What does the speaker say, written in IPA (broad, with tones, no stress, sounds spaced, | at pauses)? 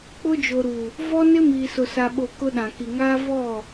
k͡p ʊ˦ d͡ʒ o˨ ɾ u˨ | v ɔ˦ n ɪ˦ m iː˨ s ʊ˨ s a˨ ɓ o˨ k ʊ˦ ɗ ã˨ k i˨ ŋ aː˦ v ɔ˦˨